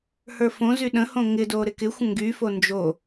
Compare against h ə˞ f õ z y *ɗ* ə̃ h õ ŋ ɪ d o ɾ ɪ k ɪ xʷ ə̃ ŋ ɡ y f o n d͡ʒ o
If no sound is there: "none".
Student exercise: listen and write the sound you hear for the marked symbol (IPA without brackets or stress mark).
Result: ɗ